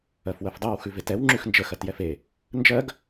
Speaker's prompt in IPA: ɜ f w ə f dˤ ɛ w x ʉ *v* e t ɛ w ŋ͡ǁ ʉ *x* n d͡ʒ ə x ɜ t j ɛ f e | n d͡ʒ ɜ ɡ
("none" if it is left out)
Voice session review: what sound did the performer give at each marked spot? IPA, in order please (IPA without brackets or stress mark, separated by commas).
v, x